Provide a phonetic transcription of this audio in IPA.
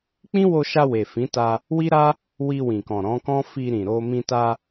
k͡p ĩ˦ w o˧ ʃ a˧ w e˨ f ĩ˨˦ t a˧ | w i˦ ɾ a˦ | w i˧ w ĩ˨ k ɔ̃˨ ɾ ɔ̃˨˦ k ɔ̃˦ f i˧ ɾ ĩ˨ ɾ o˧ m ĩ˧ t a˧

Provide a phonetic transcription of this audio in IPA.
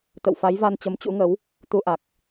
t̪ ə̰˧˨ w f a˨˦ j v a˧ n t͡ɕ ə˨˦ m t͡ɕ ṵ˧˥ ŋ ə˨˦ w | t̪ u˧ ʔ a˨˩ k̚

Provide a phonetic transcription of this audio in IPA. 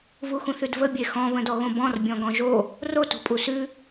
v u x ũ θ ʉ d v ə bʲ e x ɔ̃ β ə̃ d ɔ ɣ õ b ɔ̃ r bʲ ɔ̃ ɡ ɔ̃ ʒ o | r o t o̤ pʼ u s ʉ

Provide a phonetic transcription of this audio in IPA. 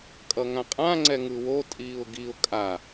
kʼ ʌ ŋ ã qʼ ã ŋ͡ǀ ɛ ŋ ɯ w o tʼ iː ʊ̯ ɡ i ʊ̯ kʼ a

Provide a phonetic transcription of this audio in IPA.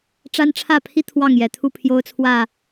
ʈ͡ʂ a˦ n ʈ͡ʂʰ ä˥˨ pʰ i˦ t̪ʰ w ɑ˥˨ ŋ j ɛ˨˩ t̪ʰ u˥˨ pʰ j o˦ ʊ̯ t͡sʰ w ä˥˨

